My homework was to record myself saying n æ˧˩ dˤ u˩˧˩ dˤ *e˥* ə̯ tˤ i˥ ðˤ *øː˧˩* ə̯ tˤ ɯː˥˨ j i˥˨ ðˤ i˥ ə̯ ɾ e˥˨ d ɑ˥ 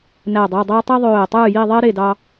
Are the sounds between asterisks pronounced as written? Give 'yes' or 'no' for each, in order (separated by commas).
yes, yes